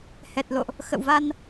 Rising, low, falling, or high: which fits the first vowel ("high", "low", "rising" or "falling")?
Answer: low